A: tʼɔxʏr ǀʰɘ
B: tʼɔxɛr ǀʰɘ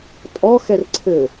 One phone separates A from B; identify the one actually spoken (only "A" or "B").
B